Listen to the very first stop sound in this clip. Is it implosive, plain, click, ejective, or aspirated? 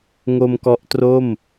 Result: plain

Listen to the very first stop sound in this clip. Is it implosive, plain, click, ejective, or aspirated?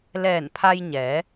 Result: aspirated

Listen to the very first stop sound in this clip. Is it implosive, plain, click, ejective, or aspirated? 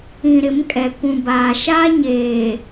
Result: ejective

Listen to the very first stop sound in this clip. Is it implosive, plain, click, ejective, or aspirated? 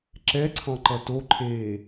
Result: click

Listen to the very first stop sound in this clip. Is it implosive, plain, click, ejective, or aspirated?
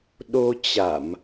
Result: implosive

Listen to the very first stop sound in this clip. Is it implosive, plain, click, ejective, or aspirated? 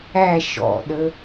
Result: implosive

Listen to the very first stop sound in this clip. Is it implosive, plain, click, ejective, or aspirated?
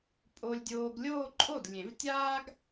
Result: ejective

